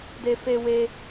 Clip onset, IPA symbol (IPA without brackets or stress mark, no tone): d